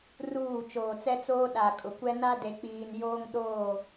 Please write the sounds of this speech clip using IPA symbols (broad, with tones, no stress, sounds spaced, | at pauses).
r uː˦˨ t͡ʃ oː˨ t͡s ɛ˦ t͡s oː˦ ɗ a˨ kʼ ʊ˨ kʷ ɛ˦ n a˦ d e˨ k͡p iː˨ n j oː˦ ŋ ɗ oː˦˨